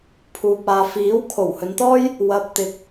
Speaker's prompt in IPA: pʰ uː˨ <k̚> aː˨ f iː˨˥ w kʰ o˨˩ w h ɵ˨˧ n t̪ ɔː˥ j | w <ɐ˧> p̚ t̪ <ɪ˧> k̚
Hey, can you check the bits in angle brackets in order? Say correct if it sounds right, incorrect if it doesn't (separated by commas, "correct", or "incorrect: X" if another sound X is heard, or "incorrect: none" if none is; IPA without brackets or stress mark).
incorrect: p̚, correct, correct